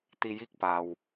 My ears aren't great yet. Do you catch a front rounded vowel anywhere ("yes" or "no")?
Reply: no